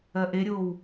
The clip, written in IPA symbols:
ɜʔeɾʲoːw

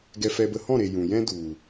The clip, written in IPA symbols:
ɡɛ˧fɛ˧bə˧ hɔ̃˦˨ɾe˨ jũ˨jɛ̃˦ du˨

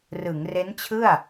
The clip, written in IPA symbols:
rɯ˩˦ŋre˦˥nt͡ɕʰɯ˥˩a̯

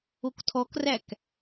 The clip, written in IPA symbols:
oktʰɔkræk

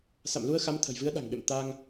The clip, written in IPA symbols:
sa̰˧˨mlu˧ə̯xa˨˦m t̪ʰə̤˨˩jvɨ˨˦ə̯ɗa̤˨˩ŋɓḛ˧˨m t̪a˧ŋ

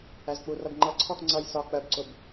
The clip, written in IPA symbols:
æzk͡purʌb ŋ͡ǃʌǀʰɔx ŋ͡ǀʌj sɒ k͡pɜbǀʊb

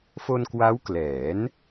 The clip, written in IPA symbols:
fo˧nkwa˦˥wklɛː˩˦n

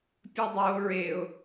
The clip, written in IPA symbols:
pʲədˤo ɹeʊ̯

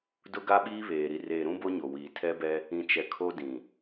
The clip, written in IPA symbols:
dʊ˦ɡa˦ɓiː˦βeː˨ ɾi˨reː˨ɾũ˦ bo˦ɲo˨wiː˨ tʰɛ˦bɛ˦ | ĩ˨t͡ʃɛ˨ kʰo˦dĩ˨

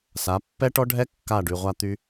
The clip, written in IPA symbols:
sa˨˦ pːɛ˦ʈɔ˦ɖʱɛ˦ kːa˦˨ɖy˨ʁʷa˦t̪y˦

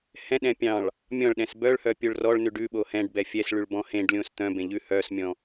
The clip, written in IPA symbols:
hɛ̃ɗɛ̃ pʲɑ̃ɭ | mʲɔ̃ɭɗɛ̃s bœɭhœ pʲoɭrɔɭnʉɖ ʉɓo hɛ̃ɖbɛ fʲɛs ɭyɭbɔ̃hẽɖlʲõs t̪œ̃ bẽʎʉhœsmʲɔ̃

